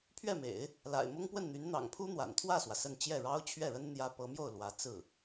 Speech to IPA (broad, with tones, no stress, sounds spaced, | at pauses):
pʰ ɥ ɛ˥˩ m ḛ˨˩˦ ɪ̯ | l a̰˨˩ ɪ̯ m ʊ˥ ŋ p w ə˥˩ n n̪ y˧˥ n n̪ ɑ̰˨˩ ŋ pʰ u˥ n̪ w a̰˨˩ n t̪ʰ w ä˥˩ s w ä˩ s ə˥˧ n t͡ɕ j ɛ˥˩ ɻ ɑ˥ ʊ̯ t͡ɕʰ ɥ ɛ˥˩ ɻ ə˥ n n̪ j ä˥ p ɤ˧˥ m j o˥˩ ʊ̯ l w ä˧˥ t͡s ɹ̩˥˩